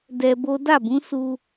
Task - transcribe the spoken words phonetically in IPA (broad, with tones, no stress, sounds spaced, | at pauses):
d ɛ˧ b o˦ d a˦˨ b ũ˨˦ s u˧